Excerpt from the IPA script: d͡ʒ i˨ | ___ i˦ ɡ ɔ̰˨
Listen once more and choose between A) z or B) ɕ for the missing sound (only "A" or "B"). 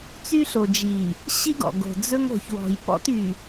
B